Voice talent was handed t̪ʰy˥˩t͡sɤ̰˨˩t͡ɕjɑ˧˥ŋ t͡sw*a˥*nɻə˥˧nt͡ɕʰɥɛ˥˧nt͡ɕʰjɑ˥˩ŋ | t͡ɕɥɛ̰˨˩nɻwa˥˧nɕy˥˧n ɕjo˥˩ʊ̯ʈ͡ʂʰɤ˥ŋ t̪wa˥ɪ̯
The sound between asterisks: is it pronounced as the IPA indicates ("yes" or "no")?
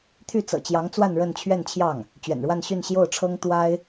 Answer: no